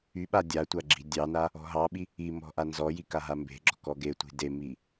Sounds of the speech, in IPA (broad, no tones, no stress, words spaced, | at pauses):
yɓa dʲatʷa ɡ͡ǁi̤ dʲɑna | ɔ̤ɦɑɓi | imɔ̤ ʔanzɔji kaɦambe̤ɡ͡ǁɔ̤ kɔɡetʷi̤ demi